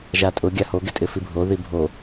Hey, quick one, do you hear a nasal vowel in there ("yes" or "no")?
no